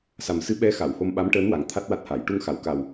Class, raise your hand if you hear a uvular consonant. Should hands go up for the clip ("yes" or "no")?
no